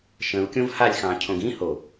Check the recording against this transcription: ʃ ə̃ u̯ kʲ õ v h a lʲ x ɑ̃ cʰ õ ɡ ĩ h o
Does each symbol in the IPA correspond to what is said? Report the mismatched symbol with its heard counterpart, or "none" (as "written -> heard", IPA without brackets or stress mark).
none